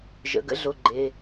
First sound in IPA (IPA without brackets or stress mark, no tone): ʒ